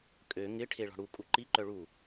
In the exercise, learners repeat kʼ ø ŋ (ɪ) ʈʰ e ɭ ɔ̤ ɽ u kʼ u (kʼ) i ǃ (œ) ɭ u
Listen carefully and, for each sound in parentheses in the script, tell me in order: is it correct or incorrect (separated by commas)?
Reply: correct, incorrect, correct